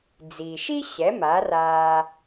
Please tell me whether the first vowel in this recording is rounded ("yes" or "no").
no